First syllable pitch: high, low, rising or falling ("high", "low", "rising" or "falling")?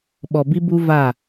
low